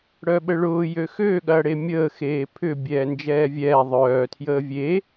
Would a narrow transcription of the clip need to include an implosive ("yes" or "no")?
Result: yes